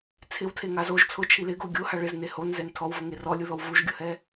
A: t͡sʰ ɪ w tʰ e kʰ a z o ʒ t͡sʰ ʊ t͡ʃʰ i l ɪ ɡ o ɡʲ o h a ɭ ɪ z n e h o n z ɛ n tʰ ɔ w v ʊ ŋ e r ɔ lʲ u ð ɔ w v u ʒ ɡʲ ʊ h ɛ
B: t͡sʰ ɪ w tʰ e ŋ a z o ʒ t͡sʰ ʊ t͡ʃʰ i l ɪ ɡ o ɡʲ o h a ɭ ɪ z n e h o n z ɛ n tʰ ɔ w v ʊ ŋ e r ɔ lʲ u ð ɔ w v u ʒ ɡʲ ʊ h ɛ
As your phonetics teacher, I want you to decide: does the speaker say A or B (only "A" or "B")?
B